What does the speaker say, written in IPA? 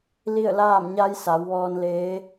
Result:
li˥˨ə̯laː˥˨m ɲa˧˥jsa˩˧wʋɔː˧n leː˧˥

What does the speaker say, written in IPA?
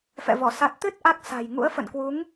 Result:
fɛ̰˧˨vɔ˧˩ sa˨˩t̚t̪ɨ˦˥t̚ ʔa˦˥k̚sa̤˨˩j ŋṵ˧˥ə̯ fə̰˧˨nkwu˨˦ŋ

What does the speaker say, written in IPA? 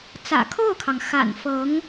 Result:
t͡sä̰˨˩kʰo˥˩ʊ̯kʰɑ˩ŋ xa̰˨˩nfɤ˧˥ŋ

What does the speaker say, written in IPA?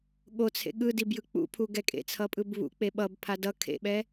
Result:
ɠot͡sʰḛ ɠɯdibjɯ k͡pṵpʰuɡɛ kʼḛt͡sʰʌpʼɯb βṵk͡pe ɓʌbpʰa dʌ kʰḛɓɛ

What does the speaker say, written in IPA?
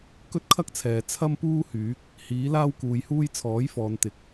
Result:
kɵ˥t̚kʰɐ˥k̚t͡sʰɛː˨ t͡sʰɐ˥mpuː˥hyː˨˥k̚ | hiː˨˥laː˥wkuː˨jhuː˥j t͡sʰɔː˨˥jfɔː˨nt̪ɪ˨˥k̚

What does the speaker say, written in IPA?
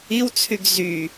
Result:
iwt͡sʰyɡ zy

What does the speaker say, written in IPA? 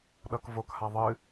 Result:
ɗʌkvokha ðˤɨ

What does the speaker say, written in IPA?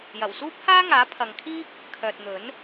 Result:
jɐ˨˩wsuː˥p̚haː˥ŋaː˨˥ pʰɐ˨ŋkʰiː˥k̚ | kʰœː˨t̚n̪ɵ˨˥n

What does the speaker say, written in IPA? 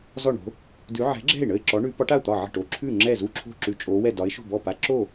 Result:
zɔ˥˩ɳo̤˨˥ | dʉ˨˥ ʕɛ̤˨˥ɡ͡ǁɛ̤˥˩ɪ̯ ɳə˥˩ɪ̯ ǁɔ˨˥ ɳʉ˨˥ pɒ˨˥ʈa˥˩ʊ̯ t̪ɒ˥˩ʕə̤˥˩ʈo˨˥ ǁʰʉ˥˩ ŋ͡ǁɛ˥˩zu˥˩ǁʰo̤˥˩ ǁʉ˨˥t͡ʃʼo˨˥wɛ˥˩ dɒ˨˥ɪ̯ʃo̤˥˩bɔ˥˩ pa˨˥ǁo˥˩

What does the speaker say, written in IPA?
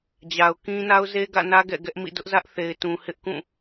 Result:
d͡ʑa˨ʊ̯kĩ˦ na˦ʊ̯ze˦ɡä̰˦˨nä˦ ɡɛ̰˦˨ɡɛ˦ʔmḭ˦˨ dʊ˦ʔzä˦ʔθe˨ɪ̯tũ˨ hɪ˦ʔkũ˦˨

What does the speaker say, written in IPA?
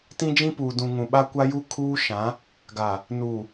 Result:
tĩ˦d͡ʒĩ˦puː˨ dũ˨ ŋũ˨ɓa˦ kʷa˦ju˦ kʰuː˦ʃã˨˦ | ɡa˨ | nuː˨

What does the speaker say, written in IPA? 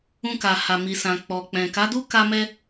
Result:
ũ˧ka˨ ha˨mi˨sã˨ k͡pɔ˨k͡pɛ̃˨ ka˨˦du˦ka˧mɛ˧

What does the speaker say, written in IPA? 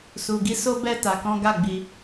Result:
su˨ɡi˧so˦bɛ˦ ta˧kɔ̃˦ ɡa˦˨ɡ͡bi˧

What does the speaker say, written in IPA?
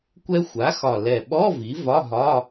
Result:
kʷɛ˧ xʷa˩˥xɒ˨˩lɛ˨˩ɓɔ˧˥˧ vi˩˥vɒ˧˥˧ɦɒ˧˥˧

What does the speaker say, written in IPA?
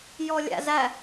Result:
jɔlʲæ̰zæ

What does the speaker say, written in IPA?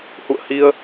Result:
hṵ˧˨ə̯hi˧ə̯

